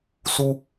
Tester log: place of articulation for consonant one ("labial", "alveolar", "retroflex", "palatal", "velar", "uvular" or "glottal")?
alveolar